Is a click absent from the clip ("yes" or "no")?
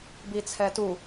yes